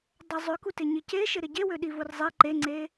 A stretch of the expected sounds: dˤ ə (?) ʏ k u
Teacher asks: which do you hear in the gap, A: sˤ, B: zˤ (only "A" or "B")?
B